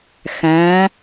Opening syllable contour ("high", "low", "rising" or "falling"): rising